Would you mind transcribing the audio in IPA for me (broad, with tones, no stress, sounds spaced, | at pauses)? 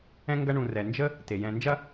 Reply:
ɛ̃˦ ŋ ɡ ɐ˦ ɳ ũ˨ r ɛ˩ n d͡ʒ ə˥ | t e˩ j ɛ̃˨ n d͡ʒ ɐ˥